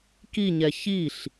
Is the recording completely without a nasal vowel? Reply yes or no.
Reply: yes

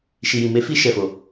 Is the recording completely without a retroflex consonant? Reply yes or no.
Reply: yes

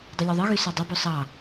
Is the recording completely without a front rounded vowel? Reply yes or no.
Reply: no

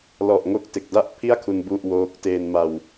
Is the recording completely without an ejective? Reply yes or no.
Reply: yes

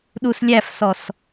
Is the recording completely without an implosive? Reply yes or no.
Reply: no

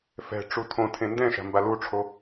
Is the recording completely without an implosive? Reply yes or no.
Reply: yes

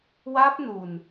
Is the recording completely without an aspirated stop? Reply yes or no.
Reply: yes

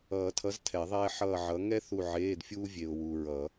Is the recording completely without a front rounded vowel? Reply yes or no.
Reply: yes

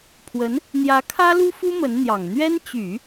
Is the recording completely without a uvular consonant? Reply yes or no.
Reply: yes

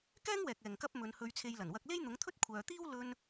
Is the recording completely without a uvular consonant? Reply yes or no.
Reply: yes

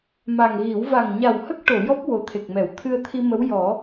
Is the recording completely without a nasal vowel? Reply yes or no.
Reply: yes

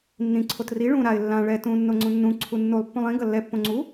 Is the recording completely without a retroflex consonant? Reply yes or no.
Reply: no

